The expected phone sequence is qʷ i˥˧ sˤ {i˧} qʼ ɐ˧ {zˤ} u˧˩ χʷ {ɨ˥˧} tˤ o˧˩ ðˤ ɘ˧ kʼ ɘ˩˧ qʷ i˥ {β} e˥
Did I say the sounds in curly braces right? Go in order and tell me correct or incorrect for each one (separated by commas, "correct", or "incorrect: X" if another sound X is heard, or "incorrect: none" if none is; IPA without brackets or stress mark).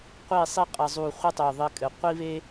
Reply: incorrect: i˥, correct, incorrect: ɨ˥, correct